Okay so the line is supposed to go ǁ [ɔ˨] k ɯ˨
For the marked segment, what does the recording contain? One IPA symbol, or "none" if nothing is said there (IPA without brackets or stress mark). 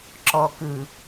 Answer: ɔ˨